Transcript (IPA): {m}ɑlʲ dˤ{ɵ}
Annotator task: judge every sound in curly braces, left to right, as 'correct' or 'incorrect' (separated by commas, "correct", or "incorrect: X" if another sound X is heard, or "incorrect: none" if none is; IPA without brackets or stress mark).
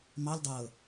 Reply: correct, incorrect: ɤ